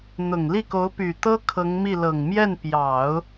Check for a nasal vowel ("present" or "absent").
absent